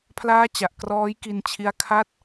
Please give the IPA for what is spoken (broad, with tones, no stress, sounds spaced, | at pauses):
pʰ l aː˦˥ t͡ɕ a˨˩ ʔ k r ɔː˦˥ j k i˧ n t͡ɕʰ i˦˥ a̯ kʰ a˥˩ t̚